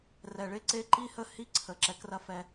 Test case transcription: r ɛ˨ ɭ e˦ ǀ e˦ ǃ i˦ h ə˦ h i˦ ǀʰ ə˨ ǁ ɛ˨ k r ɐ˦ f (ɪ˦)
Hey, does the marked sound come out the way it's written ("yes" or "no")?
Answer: no